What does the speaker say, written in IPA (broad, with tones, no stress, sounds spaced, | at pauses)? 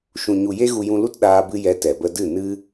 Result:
ʃ ũ˨ ɲ u˨ j e˦ ɣ u˧ j ũ˧ l u˦ t ɗ aː˧ b ɨ˧ j ɛ˧ t ɛ˨ b ə˧ d ɨ˦˨ n ɨ˦